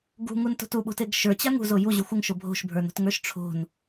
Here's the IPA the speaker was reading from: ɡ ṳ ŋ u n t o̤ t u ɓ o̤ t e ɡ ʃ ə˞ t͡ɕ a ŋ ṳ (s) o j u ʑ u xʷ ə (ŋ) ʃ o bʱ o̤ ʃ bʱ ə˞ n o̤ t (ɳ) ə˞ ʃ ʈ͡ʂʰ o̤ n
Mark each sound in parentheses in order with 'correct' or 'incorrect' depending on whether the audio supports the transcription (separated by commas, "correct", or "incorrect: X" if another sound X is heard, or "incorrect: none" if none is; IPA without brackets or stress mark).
incorrect: z, correct, incorrect: ŋ